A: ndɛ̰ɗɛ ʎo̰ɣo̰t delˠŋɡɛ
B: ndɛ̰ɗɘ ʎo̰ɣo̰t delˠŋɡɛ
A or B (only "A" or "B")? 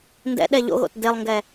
A